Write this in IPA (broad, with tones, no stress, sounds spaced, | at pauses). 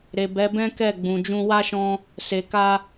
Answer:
ɾ e˨ b ɛ˨˦ b ɛ̃˦ k ɛ˦˨ ɡ͡b ũ˨ d͡ʒ ũ˧ w a˦ ʃ ɔ̃˧ | s e˨ k a˧